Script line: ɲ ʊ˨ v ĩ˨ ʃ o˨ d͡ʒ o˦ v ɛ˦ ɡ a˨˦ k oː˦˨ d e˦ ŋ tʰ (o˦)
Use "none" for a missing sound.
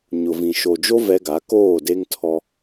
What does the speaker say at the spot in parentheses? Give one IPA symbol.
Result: ɔ˦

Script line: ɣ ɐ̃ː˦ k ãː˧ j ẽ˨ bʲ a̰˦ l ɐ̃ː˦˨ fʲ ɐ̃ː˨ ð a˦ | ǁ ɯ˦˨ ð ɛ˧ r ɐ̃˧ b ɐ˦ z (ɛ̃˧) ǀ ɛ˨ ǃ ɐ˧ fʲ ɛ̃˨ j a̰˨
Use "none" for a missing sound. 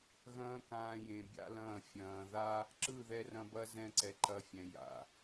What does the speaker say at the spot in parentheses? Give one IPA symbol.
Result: ɛ̃˧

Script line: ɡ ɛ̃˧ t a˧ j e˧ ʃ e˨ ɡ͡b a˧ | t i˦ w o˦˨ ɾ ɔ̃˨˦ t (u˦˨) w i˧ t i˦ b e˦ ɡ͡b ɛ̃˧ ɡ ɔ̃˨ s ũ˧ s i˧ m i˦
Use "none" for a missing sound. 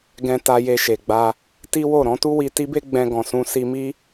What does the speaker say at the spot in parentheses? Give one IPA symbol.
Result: u˦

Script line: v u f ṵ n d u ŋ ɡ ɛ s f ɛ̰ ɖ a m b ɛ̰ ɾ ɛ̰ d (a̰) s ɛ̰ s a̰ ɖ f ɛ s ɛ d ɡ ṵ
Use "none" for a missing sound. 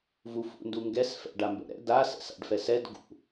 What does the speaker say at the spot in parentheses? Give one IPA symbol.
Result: a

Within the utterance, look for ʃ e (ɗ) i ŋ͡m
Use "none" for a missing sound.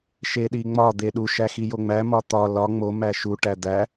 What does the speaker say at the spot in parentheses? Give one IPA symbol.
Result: ɗ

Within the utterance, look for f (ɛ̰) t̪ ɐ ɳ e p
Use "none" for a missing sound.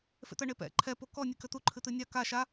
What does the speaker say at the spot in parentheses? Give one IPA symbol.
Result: ḛ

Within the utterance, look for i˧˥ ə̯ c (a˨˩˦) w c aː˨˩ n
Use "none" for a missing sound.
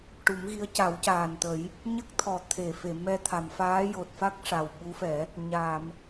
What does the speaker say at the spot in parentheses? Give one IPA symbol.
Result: a˨˩˦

